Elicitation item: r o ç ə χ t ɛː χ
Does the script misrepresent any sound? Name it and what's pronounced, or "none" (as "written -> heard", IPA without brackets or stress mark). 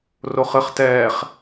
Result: ç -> χ